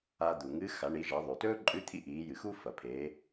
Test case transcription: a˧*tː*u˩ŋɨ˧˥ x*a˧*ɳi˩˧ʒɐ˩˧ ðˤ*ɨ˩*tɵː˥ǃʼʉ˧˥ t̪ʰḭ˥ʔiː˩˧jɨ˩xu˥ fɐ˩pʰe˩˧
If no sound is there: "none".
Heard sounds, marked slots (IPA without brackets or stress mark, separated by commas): d̪, a˩˧, ʉ˩